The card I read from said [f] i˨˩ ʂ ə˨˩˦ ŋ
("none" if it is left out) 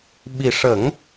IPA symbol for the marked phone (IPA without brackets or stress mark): ɓ